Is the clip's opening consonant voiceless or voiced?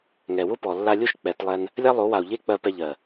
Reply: voiced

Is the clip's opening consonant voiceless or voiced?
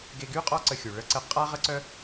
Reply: voiced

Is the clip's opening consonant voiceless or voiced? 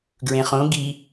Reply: voiced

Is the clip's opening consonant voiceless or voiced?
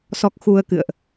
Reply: voiceless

